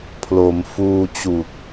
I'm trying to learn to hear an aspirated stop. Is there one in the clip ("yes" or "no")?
yes